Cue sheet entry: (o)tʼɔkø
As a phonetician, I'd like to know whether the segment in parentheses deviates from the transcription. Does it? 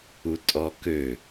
yes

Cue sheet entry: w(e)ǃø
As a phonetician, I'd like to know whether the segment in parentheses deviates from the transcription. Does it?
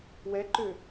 yes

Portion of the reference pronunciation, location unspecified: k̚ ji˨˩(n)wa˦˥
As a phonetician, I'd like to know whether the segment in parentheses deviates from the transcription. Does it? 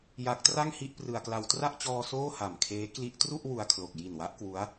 no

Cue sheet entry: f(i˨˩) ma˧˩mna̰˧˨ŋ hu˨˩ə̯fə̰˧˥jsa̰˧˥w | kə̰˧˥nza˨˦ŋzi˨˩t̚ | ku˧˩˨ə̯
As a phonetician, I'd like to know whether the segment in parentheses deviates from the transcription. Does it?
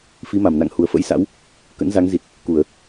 yes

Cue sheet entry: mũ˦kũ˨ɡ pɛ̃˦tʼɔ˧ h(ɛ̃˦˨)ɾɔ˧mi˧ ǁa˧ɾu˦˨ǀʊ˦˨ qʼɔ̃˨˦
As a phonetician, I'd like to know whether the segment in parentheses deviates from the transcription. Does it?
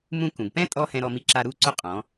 yes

